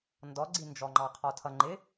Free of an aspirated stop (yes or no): no